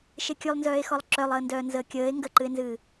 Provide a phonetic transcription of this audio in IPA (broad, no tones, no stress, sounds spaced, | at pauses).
ʃ e kʲ ʉ lˠ n z œː e̯ x ɔ lˠ ǁ œ lˠ əː n d œː n z əː kʲ əː e̯ ŋ ɡ ə ǃ ɨ e̯ n z ɨː